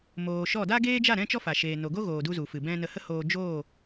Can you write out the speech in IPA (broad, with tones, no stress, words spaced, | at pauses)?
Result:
moː˨ʃɔ˦˨ da˦ɡeː˦d͡ʒa˦˨ ɾɛ̃˦t͡ʃɔ˦fa˨ ʃeː˨no˨ɡo˦ ɣoː˨du˧ zu˨fɨ˨ bɛ̃˦ nə˧hə˦hoː˧ d͡ʒoː˦˨